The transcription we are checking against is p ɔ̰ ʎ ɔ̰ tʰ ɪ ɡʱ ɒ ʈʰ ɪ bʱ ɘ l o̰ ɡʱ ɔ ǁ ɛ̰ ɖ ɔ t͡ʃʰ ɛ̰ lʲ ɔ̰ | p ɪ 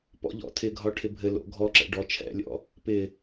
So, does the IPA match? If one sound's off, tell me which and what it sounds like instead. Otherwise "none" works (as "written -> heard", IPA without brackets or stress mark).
none